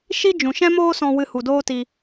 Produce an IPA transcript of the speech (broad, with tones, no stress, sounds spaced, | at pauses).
ʃ i˦ d͡ʒ ũ˨ ʃ ɛ̃˦ m oː˦ s ɔ̃˧ w ɨ˧ h u˨ d oː˦ t i˧